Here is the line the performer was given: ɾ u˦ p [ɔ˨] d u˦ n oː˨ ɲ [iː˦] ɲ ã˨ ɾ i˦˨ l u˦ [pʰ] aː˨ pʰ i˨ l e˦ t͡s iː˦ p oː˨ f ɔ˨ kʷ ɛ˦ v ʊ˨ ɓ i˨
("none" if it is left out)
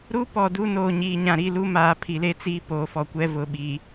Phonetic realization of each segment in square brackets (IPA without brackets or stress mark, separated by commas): ɔ˨, iː˨, m